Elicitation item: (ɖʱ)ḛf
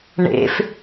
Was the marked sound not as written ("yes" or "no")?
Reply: yes